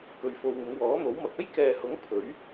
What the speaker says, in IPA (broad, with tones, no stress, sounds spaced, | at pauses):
k ɵ˧ ɥ f o˧ w ŋ ɪ˨˧ ŋ w ɔː˨˥ n̪ o˨˥ w m ɐ˨ k̚ ɐ˥ j k ɛː˨ h ʊ˨˥ ŋ pʰ ɵ˨˥ ɥ